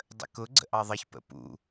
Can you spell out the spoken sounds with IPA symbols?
dˤ ə̰ k ʊ ɡ͡ǀ ə̰ ʔ ɑ ðˤ ʌ ç p ə̰ p ṵ

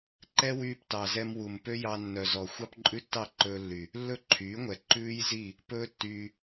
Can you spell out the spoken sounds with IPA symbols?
ǃ ɛ˦ w yː˧ p t ɑ˨ z ɛ˧ m w u˨ m p ø˦ j ɑ˧ nː œ˨ z ɔ˨ xʷ ɑ˦ p ǃʼ ʉ˦ tː ɑ˦˨ ǃ ɵː˧ lː y˨ | lː ɵ˦ ǃʰ yː˨˦ ŋʷ ɛ˨ ǃ ʉː˦ j z i˦˨ | p ɵː˦ tː yː˧

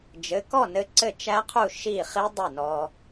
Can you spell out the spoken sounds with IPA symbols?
d͡ʒ ɘ˩˧˩ k ɔ˥˩ n ɘ˧ ǀ ɘ˥˩ t͡ʃ æ˦˥ qʰ u˥˩ ʃ i˥˩ χ i˦˥ dˤ e˥˩ n ɔ˧

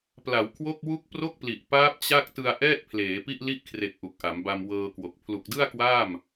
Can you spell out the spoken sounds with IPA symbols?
p l a˩˦ w kʰ w o˥˩ k̚ w u˦˥ k̚ p r o˥˩ k̚ p l i˨˩ ʔ p aː˦˥ p̚ t͡ɕ a˥˩ k̚ t ɯ˧ a̯ ʔ ɛː˥˩ t̚ pʰ l eː˩˦ p i˥˩ ʔ l i˥˩ ʔ kʰ r e˨˩ k̚ ʔ u˨˩ k̚ ʔ a˩˦ m b a˧ m w ɤː˧ k w o˨˩ k̚ pʰ l u˨˩ k̚ d ɯ˥˩ a̯ k w aː˥˩ m

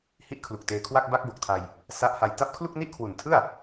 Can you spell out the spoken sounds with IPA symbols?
h i˥˩ ʔ kʰ l u˨˩ k̚ t eː˧ kʰ w a˥˩ k̚ b a˦˥ k̚ b o˨˩ k̚ tʰ a˧ j | s a˦˥ ʔ h a˧ j t a˦˥ p̚ kʰ l u˥˩ k̚ n i˥˩ ʔ kʰ w u˨˩ n tʰ ɯ˥˩ a̯

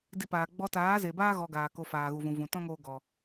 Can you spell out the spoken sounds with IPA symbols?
d i˧ p aː˨ ɡ͡b ɔ˧ t aː˨˦ z e˨ b aː˦ ɣ ɔ˧ ɡ aː˨ k o˧ f aː˨ ɣ u˨ v ũ˨ v ũ˨ t ɔ̃˦ ŋ oː˧ ɡ ɔ˨

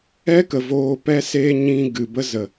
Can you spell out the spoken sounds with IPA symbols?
ɛ˦ k ə˨ v oː˧ p ɛ˦ s eː˦ ɲ ĩ˧ ɡ ɨ˨ b ə˦ z ə˨

